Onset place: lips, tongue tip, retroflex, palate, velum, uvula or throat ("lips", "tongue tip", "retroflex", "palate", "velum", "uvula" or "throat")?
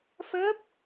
lips